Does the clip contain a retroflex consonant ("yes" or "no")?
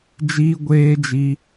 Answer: no